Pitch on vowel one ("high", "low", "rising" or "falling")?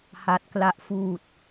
low